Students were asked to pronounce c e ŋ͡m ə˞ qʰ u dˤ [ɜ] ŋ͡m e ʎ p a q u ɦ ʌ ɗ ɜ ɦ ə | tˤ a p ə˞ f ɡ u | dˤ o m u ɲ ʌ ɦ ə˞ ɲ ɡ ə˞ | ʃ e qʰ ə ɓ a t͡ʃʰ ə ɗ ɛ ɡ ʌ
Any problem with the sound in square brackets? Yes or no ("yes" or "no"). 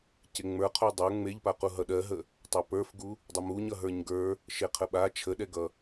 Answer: yes